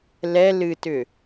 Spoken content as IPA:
l ɛ l ɨ t ʏ

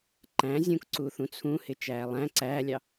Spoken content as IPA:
ǃ æ̃ zʲ ũ k ǀ u θ ũ t͡sʰ ũ h ɪ t͡ʃ æː lˠ æ̃ ǀ æː lʲ ɑ

